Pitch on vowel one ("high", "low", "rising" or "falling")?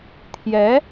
rising